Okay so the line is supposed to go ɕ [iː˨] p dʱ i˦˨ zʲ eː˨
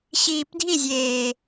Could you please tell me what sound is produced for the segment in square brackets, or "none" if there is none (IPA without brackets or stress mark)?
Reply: iː˨